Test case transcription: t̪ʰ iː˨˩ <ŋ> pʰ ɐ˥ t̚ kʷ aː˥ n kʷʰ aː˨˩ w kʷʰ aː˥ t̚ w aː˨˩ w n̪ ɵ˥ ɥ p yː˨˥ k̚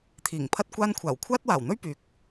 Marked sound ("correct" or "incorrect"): correct